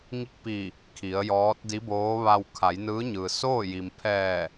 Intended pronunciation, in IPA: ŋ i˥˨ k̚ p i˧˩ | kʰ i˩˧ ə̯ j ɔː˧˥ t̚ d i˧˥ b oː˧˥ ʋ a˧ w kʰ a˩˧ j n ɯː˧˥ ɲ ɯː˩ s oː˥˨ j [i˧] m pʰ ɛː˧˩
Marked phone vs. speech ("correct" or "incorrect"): incorrect